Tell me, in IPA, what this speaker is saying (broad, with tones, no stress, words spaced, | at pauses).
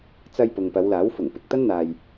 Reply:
t͡sɐ˧j pʊ˨ŋpɐ˨˧wlaː˨˥w fʊ˨˩ŋ pɪ˨k̚t̪ɐ˥nn̪aː˧j